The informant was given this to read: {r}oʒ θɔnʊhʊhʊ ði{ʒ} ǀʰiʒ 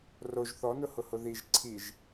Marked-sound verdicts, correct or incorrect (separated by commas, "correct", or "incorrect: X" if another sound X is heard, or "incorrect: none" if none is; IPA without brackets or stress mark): correct, correct